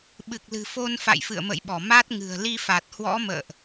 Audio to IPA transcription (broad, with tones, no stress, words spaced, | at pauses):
ɓɨ˨˩k̚lɨ̤˨˩fo˧n fa̰˧˨jfɨ̰˧˨ə̯mə̰˧˨jɓɔ˧˩ ma˦˥t̚ŋɨ̤˨˩ə̯ li˧fa˨˩t̚hwɔ̰˧˥ mə̰ː˧˨ʔ